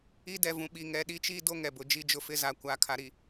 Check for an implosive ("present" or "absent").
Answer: present